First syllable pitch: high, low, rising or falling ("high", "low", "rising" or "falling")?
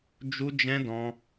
high